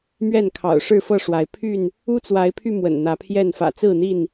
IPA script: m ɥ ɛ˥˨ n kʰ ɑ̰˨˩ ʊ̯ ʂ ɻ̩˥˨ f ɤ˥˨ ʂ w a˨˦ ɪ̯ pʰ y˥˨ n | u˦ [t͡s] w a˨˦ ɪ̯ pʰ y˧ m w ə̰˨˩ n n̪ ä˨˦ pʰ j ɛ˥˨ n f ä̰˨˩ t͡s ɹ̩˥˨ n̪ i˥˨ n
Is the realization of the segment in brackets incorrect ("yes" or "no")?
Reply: no